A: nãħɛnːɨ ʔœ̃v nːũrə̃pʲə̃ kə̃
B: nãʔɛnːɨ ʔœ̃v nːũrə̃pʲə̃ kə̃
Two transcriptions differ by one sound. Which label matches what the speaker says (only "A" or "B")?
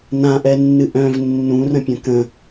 B